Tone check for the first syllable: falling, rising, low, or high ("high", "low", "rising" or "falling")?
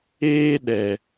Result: high